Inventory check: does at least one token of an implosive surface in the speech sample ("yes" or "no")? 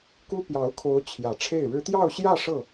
no